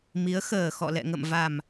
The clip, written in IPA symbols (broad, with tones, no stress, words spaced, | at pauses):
mi˨˦ə̯xəː˨˩ xɔ̰˧˨lɛ̰˧˨ŋə̰˧˨mva˨˩m